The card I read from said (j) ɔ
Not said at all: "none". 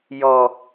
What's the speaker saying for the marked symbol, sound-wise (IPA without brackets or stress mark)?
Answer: j